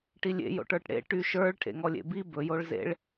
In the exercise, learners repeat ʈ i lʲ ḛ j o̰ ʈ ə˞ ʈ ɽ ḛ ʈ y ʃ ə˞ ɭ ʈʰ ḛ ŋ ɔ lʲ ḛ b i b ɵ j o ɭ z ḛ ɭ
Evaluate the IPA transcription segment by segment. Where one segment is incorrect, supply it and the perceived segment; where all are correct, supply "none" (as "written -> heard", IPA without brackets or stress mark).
none